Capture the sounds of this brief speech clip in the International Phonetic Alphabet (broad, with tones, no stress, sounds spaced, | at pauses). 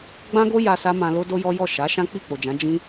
ɡ͡b ã˦ ɡ o˦ j a˧ s a˦ m ã˧ l o˦ d o˦ j ɔ˦ j ɔ˦˨ ʃ a˨˦ ʃ ã˦ k͡p i˦˨ k͡p o˨ d͡ʒ ã˨˦ d͡ʒ ĩ˦